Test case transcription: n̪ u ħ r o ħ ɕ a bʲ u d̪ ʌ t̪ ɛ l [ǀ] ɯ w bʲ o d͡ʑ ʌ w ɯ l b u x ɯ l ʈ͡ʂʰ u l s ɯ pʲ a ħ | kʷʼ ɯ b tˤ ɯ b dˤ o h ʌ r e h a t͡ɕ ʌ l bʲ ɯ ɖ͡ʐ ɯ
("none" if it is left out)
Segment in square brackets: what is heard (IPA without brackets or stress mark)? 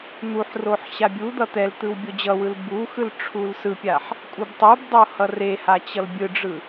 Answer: t̪